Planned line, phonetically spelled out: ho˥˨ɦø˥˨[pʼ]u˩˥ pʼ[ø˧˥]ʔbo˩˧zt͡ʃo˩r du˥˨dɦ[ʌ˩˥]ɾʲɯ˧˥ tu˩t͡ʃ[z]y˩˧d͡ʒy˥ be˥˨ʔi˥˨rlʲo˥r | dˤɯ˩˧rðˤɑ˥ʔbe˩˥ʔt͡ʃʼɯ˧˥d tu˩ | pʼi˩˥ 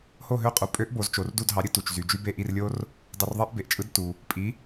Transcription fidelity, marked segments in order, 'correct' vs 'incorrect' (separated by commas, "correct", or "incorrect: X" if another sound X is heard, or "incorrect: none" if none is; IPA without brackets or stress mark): incorrect: qʼ, correct, incorrect: ɑ˩˥, correct